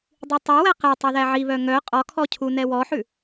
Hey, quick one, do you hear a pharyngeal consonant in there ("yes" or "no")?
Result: yes